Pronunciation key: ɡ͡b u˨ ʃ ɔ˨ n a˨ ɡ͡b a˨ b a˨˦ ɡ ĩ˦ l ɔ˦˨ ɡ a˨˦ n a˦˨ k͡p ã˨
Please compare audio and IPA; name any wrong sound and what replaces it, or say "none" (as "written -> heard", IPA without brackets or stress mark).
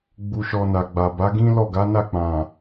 none